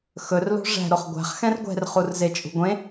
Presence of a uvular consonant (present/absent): present